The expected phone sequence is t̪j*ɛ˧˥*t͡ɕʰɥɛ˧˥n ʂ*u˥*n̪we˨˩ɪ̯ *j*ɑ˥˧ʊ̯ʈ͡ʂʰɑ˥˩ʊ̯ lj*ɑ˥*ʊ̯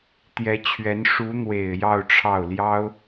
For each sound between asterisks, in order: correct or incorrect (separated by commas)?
correct, incorrect, correct, correct